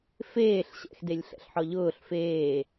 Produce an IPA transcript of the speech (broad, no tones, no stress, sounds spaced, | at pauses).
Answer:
f eː ɬ ɕ ɛ̰ x d e lʲ ɬ ɛ̰ ɬ ħ ɔ ʎ ʊː ɬ f eː